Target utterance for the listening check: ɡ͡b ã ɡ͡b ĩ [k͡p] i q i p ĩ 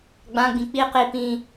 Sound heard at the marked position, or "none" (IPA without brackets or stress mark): k͡p